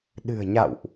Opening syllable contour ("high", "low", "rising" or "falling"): low